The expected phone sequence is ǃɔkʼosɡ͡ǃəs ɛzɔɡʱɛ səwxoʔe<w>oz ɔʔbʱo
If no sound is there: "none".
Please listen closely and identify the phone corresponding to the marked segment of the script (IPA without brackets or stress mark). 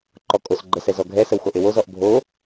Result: w